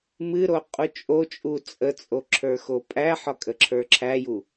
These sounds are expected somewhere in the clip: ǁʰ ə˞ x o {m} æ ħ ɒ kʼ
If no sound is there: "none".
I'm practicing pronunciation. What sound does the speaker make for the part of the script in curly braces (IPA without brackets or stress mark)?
pʼ